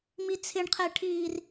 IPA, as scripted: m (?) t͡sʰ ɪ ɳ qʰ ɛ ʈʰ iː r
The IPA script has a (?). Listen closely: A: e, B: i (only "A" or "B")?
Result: B